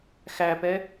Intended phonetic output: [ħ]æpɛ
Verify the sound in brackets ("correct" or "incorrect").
incorrect